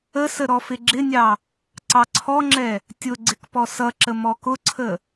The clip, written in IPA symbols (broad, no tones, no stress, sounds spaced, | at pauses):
ə s ə ɾ ɔ f ɪ ɡ͡ǁ ɪ nʲ ɑ | ǀ ɑ ǀʰ ɔ ŋ͡ǁ ɛ | tʲ ʊ ɡ͡ǀ ɪ k p ɔ s ʌ ǁ ə m ɔ k ʊ ǀʰ ə